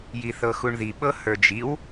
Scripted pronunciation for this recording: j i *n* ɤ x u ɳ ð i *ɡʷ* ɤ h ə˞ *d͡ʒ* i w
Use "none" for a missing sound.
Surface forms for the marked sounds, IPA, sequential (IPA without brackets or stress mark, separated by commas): θ, ɓ, d͡ʒ